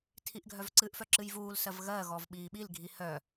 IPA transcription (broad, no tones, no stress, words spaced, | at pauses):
tʰiʔɡʱœvǀɨʔfœ ǁɨjvuːlsɜv ɣɜɣɔv ɓiːɓilɡʱi hœ